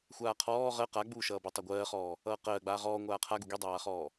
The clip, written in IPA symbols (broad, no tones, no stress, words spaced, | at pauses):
xʷaːqʰɔː ʁɜ qaɡ͡buːʃʌːbi tˤaɡʷɜːχɔː | ʌːqɜːɡ͡baː ʁɔː ŋʷaːqʰaɡu ɡidˤaːχɔː